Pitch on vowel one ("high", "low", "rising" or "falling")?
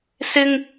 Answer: high